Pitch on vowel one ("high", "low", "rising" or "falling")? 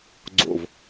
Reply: low